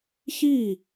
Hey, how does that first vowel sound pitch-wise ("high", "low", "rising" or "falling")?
falling